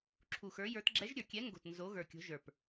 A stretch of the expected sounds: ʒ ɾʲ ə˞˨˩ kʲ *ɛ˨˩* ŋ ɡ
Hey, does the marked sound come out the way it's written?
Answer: no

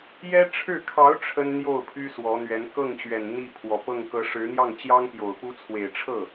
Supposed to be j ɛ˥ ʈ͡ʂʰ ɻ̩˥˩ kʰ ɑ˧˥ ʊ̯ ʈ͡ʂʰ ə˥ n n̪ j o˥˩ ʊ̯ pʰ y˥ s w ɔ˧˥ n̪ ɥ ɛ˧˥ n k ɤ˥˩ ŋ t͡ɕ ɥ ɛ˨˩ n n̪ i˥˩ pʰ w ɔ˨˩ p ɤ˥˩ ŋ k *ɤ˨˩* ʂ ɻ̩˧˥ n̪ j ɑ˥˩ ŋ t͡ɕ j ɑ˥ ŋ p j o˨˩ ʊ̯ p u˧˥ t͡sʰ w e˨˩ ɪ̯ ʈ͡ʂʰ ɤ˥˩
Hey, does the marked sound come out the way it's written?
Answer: no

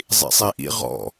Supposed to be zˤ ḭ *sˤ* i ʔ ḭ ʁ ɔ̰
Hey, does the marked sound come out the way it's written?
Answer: yes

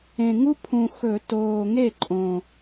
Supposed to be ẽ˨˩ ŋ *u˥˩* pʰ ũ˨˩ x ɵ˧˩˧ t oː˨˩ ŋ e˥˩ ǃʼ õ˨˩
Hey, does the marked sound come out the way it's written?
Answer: no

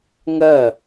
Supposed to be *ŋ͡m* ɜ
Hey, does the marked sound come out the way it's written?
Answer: no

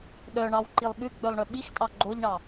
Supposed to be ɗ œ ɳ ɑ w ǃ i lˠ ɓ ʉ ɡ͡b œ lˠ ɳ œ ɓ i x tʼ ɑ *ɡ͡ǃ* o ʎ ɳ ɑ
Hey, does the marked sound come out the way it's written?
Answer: yes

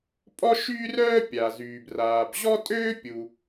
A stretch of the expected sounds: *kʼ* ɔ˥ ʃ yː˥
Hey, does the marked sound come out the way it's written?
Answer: no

